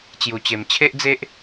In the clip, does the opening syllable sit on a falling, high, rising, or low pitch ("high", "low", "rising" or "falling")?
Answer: low